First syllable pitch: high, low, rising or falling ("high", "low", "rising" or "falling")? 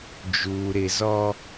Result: low